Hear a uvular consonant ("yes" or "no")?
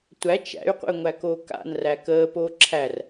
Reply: yes